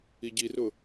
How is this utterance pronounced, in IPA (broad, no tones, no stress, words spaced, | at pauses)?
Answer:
iɟirʊ